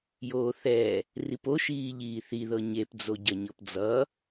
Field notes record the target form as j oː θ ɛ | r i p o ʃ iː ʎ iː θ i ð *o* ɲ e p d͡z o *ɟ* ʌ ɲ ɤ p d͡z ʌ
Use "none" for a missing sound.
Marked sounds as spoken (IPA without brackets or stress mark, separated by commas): ɤ, ɟ